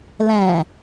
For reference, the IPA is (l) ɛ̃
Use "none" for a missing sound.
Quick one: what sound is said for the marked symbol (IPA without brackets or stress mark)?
l